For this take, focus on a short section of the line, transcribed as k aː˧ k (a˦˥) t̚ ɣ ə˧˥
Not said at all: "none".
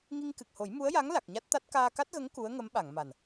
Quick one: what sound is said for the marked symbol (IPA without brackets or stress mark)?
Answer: a˦˥